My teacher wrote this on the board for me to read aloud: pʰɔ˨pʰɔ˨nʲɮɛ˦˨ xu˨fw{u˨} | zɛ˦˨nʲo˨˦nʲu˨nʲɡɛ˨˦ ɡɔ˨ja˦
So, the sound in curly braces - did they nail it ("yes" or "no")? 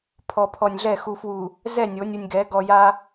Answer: yes